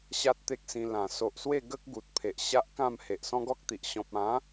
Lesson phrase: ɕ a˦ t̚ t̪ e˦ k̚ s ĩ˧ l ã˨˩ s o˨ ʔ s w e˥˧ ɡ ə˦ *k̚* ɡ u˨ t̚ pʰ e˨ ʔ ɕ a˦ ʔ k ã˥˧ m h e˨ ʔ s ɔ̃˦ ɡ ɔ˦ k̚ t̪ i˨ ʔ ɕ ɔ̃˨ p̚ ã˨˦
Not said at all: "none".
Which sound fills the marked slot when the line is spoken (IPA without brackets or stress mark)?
k̚